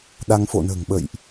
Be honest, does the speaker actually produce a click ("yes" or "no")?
no